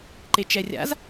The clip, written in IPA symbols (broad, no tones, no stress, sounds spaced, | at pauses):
ǃ e t͡ʃ ɛ rʲ a̰ z